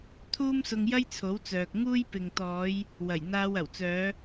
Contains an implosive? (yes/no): no